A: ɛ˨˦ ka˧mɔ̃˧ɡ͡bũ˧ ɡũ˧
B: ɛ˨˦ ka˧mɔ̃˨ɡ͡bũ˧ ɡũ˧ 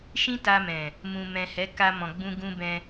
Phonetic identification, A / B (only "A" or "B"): B